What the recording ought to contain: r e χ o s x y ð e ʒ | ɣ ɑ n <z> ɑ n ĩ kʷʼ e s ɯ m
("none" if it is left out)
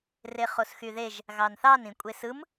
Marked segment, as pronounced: θ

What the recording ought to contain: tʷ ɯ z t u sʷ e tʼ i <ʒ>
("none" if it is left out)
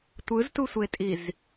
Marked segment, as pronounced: z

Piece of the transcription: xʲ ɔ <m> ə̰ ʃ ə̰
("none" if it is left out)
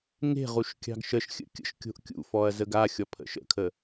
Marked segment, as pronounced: pʰ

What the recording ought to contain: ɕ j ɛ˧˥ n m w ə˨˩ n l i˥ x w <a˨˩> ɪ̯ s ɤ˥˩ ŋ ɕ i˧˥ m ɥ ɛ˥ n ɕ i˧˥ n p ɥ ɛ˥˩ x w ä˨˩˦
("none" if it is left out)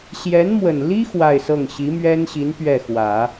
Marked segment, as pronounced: a˥˧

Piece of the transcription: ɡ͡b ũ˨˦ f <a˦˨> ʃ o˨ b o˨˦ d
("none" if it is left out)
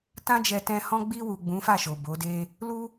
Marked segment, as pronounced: a˦˨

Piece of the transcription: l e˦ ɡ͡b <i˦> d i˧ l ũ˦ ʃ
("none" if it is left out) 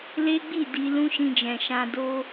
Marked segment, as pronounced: i˦˨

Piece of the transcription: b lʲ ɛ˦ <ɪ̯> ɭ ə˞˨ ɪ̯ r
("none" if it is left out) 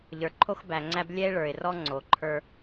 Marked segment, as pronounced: ɪ̯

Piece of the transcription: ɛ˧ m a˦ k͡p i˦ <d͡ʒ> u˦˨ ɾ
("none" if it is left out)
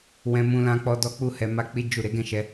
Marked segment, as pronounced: d͡ʒ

